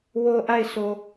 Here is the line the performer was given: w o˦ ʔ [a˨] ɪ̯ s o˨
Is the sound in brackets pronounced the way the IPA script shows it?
no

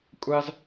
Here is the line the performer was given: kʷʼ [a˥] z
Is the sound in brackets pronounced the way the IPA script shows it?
yes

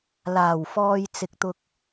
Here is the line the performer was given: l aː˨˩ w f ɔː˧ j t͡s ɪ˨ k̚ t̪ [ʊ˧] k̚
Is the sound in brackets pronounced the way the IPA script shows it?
yes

